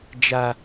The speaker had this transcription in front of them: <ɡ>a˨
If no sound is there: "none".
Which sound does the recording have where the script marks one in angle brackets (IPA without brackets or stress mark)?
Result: d͡ʒ